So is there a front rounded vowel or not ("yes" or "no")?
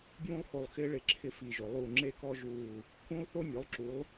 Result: no